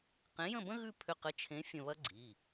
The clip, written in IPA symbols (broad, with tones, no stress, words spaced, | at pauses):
qẽ˨˥jə̃˥˨bə̃˥ ɣʉ˥˨pʰʏ˧qə˨˥t͡ʃʰẽ˨˥ fʲə̃˧βɐ˥ɡ͡ǀi˩˧˩